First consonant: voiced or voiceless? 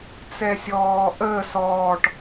voiceless